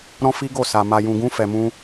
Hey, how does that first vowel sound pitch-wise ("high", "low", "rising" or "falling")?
high